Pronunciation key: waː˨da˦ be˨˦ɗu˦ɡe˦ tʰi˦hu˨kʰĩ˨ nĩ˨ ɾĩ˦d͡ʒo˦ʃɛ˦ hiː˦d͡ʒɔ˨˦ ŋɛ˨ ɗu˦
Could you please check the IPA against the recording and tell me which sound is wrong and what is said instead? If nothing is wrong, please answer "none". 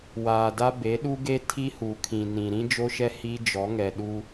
none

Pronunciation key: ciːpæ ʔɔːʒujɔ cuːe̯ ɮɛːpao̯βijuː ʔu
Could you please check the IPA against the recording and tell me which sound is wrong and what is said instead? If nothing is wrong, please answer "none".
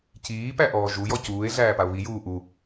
ɛː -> æː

